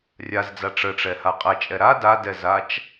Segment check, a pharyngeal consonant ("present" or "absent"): absent